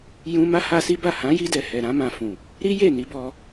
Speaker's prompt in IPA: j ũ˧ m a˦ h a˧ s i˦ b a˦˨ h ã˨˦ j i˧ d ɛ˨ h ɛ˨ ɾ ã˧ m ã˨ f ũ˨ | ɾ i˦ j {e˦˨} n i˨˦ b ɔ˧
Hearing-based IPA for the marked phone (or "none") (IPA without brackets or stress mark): e˦˨